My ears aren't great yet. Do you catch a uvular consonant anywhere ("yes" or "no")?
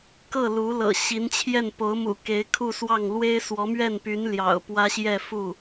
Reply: no